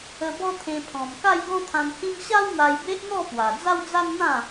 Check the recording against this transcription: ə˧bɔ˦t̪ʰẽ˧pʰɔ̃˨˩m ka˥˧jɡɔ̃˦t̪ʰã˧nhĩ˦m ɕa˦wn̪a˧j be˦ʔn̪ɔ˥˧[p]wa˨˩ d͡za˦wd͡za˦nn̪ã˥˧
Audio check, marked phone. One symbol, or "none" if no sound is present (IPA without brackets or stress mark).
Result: p